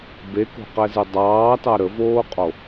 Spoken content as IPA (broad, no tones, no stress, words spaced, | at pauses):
beko̤qɛzɨ dˤɑːtɑ ɾəvoːqʼo